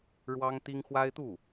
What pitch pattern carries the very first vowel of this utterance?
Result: high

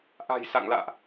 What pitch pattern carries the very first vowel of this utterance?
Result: low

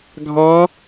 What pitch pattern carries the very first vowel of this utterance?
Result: rising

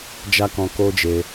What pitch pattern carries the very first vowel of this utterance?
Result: high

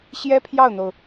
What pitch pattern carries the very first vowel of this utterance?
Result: high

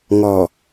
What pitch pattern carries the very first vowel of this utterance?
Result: low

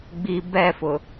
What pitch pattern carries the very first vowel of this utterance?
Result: low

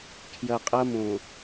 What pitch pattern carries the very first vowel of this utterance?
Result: low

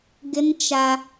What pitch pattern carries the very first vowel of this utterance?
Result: high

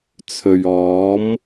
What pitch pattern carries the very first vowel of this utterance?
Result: low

